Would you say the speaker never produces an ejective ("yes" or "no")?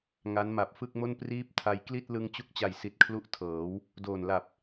yes